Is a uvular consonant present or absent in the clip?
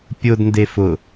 absent